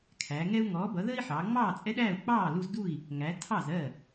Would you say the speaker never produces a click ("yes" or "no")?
yes